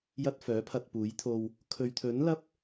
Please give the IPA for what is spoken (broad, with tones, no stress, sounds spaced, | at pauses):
j ɐ˧ t̚ f œː˨˥ pʰ ɐ˧ t̚ p uː˨˥ j t̪ʰ o˧ w | kʰ ɵ˨ ɥ t̪ʰ ɵ˨˥ n l ɐ˥ p̚